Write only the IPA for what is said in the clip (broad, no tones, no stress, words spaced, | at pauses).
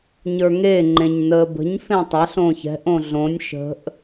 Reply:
ɲə˞ŋe ŋ͡ǃẽɲnəːbə̤ɲ fẽtˤaɬ õçɛ̤ʔ õɮõnʲ ʃə̤ʔ